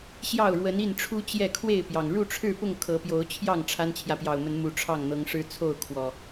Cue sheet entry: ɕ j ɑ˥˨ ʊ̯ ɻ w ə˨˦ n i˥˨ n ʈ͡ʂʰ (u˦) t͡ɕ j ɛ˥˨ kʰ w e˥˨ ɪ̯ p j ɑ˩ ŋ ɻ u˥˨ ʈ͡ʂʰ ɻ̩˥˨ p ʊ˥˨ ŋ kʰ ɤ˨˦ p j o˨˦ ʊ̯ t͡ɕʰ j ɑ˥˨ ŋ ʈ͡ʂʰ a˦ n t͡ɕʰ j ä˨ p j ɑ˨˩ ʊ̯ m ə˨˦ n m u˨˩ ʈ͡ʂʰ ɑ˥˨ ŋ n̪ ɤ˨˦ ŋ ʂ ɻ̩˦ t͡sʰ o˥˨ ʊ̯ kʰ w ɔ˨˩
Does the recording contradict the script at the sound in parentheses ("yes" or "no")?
no